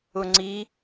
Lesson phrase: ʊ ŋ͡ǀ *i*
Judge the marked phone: correct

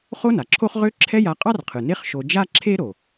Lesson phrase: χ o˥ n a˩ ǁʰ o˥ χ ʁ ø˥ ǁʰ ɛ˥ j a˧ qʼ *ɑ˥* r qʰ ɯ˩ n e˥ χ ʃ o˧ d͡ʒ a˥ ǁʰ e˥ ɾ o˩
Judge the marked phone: correct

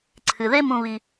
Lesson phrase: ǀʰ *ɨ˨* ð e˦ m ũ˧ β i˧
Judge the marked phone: correct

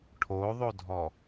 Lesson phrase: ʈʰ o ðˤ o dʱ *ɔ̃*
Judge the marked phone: incorrect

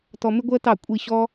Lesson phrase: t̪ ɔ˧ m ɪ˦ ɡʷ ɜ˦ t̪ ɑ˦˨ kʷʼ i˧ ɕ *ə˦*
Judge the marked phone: incorrect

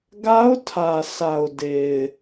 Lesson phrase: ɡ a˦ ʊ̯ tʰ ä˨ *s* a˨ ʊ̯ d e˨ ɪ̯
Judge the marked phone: correct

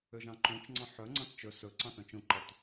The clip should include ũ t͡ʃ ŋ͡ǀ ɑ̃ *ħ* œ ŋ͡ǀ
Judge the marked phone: correct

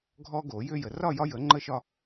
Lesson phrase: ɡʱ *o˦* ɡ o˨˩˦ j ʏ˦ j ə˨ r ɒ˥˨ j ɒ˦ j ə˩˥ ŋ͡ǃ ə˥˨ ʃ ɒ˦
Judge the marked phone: incorrect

